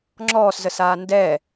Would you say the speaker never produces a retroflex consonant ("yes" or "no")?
yes